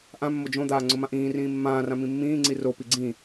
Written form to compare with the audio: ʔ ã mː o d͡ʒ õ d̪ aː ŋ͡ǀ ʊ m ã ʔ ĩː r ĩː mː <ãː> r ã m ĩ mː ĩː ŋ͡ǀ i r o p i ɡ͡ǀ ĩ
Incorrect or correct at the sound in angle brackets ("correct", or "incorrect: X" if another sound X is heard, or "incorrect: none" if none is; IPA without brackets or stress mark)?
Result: correct